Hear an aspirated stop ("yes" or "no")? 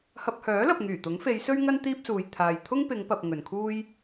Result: yes